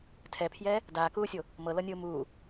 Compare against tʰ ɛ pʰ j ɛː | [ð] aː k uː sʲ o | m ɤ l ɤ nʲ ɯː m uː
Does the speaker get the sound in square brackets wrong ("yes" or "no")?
yes